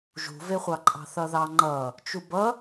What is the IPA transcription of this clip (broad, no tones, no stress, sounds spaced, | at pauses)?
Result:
ʒ ṳ v e χʷ ɑ ǃʼ ɑ̤ θ ʌ ð ɑ ŋ͡ǃ ʌ | t͡ʃ u b ʌ